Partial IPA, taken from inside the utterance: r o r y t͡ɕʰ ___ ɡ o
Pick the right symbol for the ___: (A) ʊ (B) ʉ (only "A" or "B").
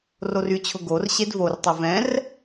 A